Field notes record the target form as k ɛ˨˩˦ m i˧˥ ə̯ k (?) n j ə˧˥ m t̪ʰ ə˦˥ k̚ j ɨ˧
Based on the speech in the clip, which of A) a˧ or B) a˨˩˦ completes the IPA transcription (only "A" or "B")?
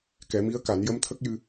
B